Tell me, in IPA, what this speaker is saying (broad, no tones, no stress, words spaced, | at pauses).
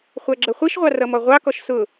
χʷæɡ͡ǁʌχʷiʃʁʷɑ rʌmɔʁʷɑkɔʃ sʊ